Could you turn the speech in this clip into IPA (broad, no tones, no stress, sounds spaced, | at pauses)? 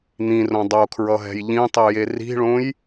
n̪ ĩ r õ dˤ o kʰ ɹ ʌ ɦ ɛ̤ j ʎ ĩ tˤ i j e r i̤ ɭ õ j